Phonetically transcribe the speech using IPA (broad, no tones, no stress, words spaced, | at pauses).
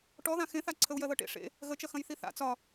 ʈɔðã xẽθa ǀʰəu̯jɜðɤʈḛ ʂḛ | ɣət͡ʃɐ xɐ̃jθiθa̰ t͡sɒ